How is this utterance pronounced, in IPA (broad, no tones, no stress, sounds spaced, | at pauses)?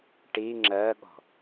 ʈ i ŋ͡ǁ ɜ ɠ ɔ̤